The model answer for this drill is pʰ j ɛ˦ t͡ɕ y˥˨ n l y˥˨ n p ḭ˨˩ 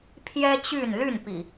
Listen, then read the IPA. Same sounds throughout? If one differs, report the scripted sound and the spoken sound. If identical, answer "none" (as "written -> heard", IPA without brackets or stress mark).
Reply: none